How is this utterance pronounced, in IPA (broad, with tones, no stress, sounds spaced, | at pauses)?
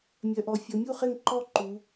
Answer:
mʲ œ˩˧ ʔ ɔ˩˧ fʲ ɤ˩˧ mʲ u˥˨ χ e˥˨ ŋ ǃ ɔ˥˨ ǃ u˩˧